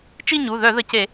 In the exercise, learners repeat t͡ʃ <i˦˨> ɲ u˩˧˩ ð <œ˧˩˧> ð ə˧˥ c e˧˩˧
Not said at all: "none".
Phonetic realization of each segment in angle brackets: i˦˨, œ˧˩˧

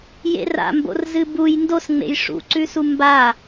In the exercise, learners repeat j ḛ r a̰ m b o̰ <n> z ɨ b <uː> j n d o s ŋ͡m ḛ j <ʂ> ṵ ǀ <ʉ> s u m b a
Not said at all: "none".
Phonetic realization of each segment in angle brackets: r, u, ʂ, ʉ

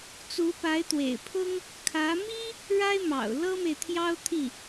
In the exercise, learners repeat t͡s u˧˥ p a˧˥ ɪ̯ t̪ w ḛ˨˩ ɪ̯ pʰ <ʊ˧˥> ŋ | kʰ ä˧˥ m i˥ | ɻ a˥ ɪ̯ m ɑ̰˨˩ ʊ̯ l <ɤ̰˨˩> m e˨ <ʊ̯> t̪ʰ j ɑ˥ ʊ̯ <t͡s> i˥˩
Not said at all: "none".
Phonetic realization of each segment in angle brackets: ʊ˥, ɤ˥, ɪ̯, t̪ʰ

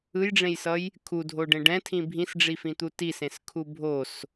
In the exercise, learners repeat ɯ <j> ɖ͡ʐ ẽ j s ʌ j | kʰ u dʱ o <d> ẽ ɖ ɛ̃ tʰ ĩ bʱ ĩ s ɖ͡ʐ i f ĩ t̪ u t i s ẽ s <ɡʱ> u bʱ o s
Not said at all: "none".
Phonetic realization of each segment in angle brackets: j, ɖ, kʰ

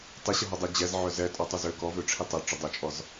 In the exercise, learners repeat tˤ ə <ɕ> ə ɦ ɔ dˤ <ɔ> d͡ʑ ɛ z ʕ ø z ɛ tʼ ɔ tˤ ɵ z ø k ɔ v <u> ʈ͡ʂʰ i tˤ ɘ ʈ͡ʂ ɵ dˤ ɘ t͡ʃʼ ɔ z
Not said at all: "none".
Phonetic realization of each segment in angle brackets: ɕ, ɵ, ø

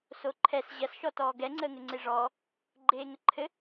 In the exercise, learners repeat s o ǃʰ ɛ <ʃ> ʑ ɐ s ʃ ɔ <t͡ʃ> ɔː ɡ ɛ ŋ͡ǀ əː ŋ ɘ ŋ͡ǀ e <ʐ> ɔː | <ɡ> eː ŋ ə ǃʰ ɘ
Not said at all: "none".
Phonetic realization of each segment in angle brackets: s, t, ʐ, ɡ͡ǃ

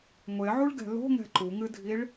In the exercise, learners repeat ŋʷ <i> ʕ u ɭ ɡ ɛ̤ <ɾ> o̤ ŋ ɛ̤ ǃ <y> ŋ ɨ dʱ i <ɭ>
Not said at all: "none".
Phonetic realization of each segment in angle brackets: e, l, u, ɭ

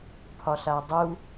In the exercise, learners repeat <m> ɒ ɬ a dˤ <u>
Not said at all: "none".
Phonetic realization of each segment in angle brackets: pʰ, u

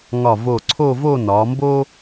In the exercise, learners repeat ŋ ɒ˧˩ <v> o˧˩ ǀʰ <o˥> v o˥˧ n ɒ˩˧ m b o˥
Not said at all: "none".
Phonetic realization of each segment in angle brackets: v, o˥˧

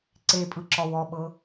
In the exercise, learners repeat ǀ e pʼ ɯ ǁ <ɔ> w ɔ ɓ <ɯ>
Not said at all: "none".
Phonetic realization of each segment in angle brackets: ɔ, ɤ

